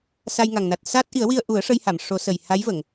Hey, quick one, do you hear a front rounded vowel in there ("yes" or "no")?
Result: no